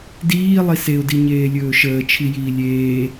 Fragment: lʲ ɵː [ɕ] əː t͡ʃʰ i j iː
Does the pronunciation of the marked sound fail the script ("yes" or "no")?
yes